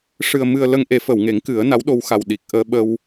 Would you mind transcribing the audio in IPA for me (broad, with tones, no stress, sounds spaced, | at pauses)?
ʂ ɨ˨˩ ə̯ m ɨ˨˩ ə̯ l ə˧ ŋ ʔ e˨˩˦ f ə˨˩˨ w ŋ e˨˩˦ ŋ k ɨ˨˩˦ ə̯ n a˧˥ w ɗ o˧ w x a˨˩ w ɗ i˨˩ k̚ ʔ əː˧ ɓ ə˧ w